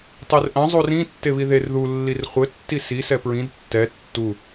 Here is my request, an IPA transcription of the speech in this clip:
tˤerʔɐ̃ zˤurĩ tːeβiðer ðu lːirχʷɘ tːisi sɛpɹĩd tːɛ tːu

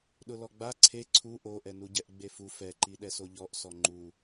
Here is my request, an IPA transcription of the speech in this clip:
ɗʊlɔɡ͡ba ǀʰe ǀʰu ʔoʔɛnuɟɛʔ ɡ͡befu fɛǃi ɗɛsoʎɔʔ sɔŋ͡ǃu

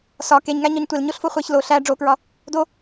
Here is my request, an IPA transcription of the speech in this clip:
sɒ keɲŋæɲɒɲ tʷelɲoɬfo χʷeç lo ɬæ ɖ͡ʐokɹɒ | do

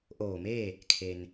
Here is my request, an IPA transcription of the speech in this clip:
ʔoː˧˩meː˥˨ | kʰe˩n

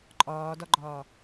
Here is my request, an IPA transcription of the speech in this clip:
ǃʼɒːdɒɡ͡ǃɒː

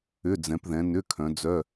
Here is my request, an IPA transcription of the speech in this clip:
ʏ˧˥˧d͡zɛ̃˨˦pðɛ̃˨˦ nʏ˧˥˧kʰœ̃˨˦d͡zœ˧˥˧

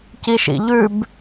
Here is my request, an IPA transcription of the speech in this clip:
ciʃḭʎʉb

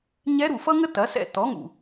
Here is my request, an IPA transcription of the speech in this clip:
ɲɛ˧˥ɾu˩ fʌ˥ŋə˥tɐ˩˥sɛ̰˥˨ tɔ˩˥ŋṵ˩

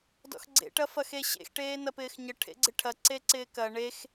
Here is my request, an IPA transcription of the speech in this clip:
dɔ̰xɡ͡ǀḛʈɐ fɐxeɕḛxʈeː nɐpɪːxɲə ʈʰḛɡ͡ǀɪʈʰɐ ǀeǀɪːkɐ ɳex

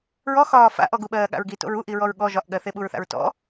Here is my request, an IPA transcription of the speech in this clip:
ɹɔxɒː fa̰ʔɔ ɡuɓɜːɠa̰ɹɡi to̰ɹuʔiɹɔɹ ɠɔ ʒɒʔɠɜ θeɓuɹθa̰ɹtɔ̰

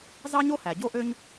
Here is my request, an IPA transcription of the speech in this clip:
zɑ˥ɲo˥hæ˩ ɟo˥ ʔø˥ɲ

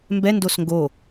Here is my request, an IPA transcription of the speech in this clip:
mbɛndos ŋɡo

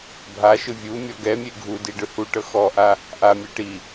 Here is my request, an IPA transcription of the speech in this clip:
bʱaʃɯ vʲu mʲɔɡɛmʲe ɡʱudi ɖɯhuʈɤ xɔʔa | ʔamʲɛ ʈi

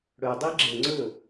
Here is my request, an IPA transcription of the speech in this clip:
ɽɵdˤi ɡ͡ǁəŋ͡ǀɵ

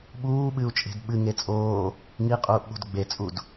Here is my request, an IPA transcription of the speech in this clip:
ɓuːɓɨu̯t͡ʃʼe̤d ɓɨŋe t͡sʼoː | ŋiqʼuːʔɓo̤d ɡ͡bet͡sʼud

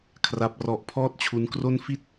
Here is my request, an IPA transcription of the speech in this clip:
kʰra˦˥p̚rɔ˦˥ʔ pʰɔː˥˩t̚t͡ɕʰu˦˥nkro˥˩n fi˥˩t̚

